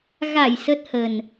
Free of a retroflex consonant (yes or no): yes